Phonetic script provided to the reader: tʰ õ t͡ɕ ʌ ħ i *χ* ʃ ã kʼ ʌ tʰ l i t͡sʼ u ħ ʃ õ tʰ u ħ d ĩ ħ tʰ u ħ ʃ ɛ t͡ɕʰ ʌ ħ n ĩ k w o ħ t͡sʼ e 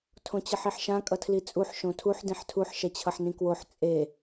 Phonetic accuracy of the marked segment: incorrect: ħ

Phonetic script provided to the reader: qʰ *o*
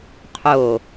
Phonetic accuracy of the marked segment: correct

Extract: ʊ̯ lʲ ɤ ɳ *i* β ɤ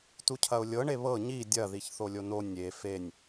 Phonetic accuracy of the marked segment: incorrect: e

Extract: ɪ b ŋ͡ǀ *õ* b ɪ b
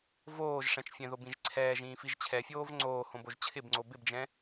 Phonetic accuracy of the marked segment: incorrect: o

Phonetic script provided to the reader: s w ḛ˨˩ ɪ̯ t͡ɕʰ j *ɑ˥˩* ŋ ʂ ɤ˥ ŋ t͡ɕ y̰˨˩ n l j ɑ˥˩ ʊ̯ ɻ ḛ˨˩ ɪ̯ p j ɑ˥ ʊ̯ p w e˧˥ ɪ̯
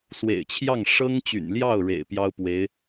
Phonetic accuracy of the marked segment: correct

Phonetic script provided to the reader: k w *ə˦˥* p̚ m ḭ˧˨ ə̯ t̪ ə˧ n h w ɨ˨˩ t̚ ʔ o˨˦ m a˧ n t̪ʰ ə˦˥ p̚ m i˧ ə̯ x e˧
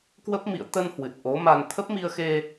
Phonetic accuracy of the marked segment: correct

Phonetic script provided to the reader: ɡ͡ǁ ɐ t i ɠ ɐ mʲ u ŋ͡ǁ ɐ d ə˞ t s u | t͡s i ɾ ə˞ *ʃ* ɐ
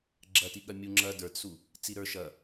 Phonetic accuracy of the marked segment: correct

